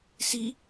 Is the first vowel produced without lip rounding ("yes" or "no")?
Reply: yes